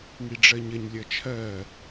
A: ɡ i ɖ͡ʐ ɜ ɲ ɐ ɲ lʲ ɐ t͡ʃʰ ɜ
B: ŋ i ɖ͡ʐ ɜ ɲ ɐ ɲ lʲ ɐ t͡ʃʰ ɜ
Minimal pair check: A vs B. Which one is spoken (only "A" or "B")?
B